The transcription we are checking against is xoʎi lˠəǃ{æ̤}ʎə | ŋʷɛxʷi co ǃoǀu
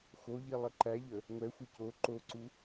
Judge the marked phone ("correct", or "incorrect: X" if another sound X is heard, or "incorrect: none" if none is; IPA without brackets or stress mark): incorrect: æ